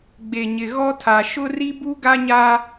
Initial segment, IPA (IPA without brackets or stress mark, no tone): ɡ͡b